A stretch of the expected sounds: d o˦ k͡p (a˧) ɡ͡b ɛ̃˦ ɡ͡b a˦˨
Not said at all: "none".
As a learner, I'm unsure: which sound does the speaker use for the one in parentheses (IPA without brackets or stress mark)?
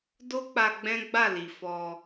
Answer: a˧